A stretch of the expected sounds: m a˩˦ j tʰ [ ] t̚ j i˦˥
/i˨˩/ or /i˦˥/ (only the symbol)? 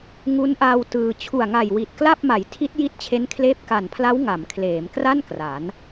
i˦˥